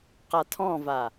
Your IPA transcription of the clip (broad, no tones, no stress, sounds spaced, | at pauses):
q a tʰ ɔ̃ v a